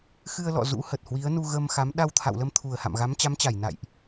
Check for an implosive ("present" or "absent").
present